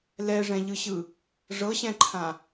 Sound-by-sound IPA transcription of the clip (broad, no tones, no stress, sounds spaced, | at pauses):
l ɛ ʐ ɛ̃ ʎ ɯ ɕ ɯ | ʐ ɤ ɕ ɛ̃ ǃʰ ã